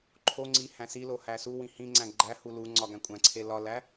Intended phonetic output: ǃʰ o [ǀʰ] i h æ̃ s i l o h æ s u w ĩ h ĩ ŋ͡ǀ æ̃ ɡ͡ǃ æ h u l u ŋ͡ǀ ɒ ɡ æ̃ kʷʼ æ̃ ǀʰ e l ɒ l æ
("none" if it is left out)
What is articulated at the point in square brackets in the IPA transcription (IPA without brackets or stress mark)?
ŋ͡ǀ